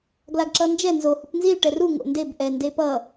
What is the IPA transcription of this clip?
ɡ l a ɡ ǁ ʌ n d͡ʒ ɛ n z o h u p n z i l ʈ ɛ r u ŋ o̰ n d e b ʔ ɛ n d e p ʌ

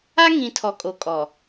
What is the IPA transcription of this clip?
a˦ ŋ ĩ˨ tʰ ɔ˨ kʼ o˨ kʼ ɔ˨

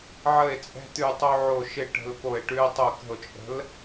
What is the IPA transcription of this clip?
ʕ ə˧˩ e̯ t͡sʼ ɛ̤˧ t̪ ʉ˧˩ tˤ o˧ ʕ o˧˩ ʃ ɪ˧ ʈ ə̤˧ l p o˧˩ e̯ ʈ ʉ˧ e̯ tˤ o˧˩ k ə̤˧˩ o̯ t͡ʃʼ ə̤˨˥ l

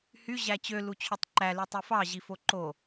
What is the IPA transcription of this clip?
h y ʑ æ t͡ɕ ø l u t͡ɕʰ ø tˤ ǃ æ l y tˤ y f ɑ ʑ i f o ǃ o

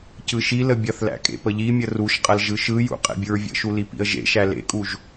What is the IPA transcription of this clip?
c ɯ ʃ i l ə bʲ ɐ θ l æ̰ kʼ ḛ p ə ʎ i mʲ ə r u ʃ qʼ ɐ l ʒ ɯ ʃ ɯ j ṵ qʼ ḛ bʲ ɯ ɹ vʲ ə̰ ʃ u l i p ḭ ə̯ ʒ ḛ ʃ æ l ḛ kʼ u ʒ

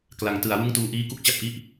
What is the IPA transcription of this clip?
k l a˩˦ ŋ t ɯ˩˦ a̯ w ɯ˥˩ ŋ t uː˧ ʔ iː˦˥ k u˥˩ k̚ t͡ɕ a˥˩ p̚ ʔ i˥˩ ʔ

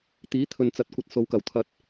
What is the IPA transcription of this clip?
t̪ iː˨˥ t̪ʰ ɵ˨ n t͡s ɐ˨˥ t̚ kʷ ɐ˨ t̚ s o˨˧ w k ɐ˨˩ w t̪ʰ ɐ˨ t̚

